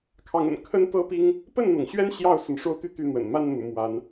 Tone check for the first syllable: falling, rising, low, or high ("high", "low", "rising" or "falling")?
rising